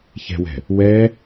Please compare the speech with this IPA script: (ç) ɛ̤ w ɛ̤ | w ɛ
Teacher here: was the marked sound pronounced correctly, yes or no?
yes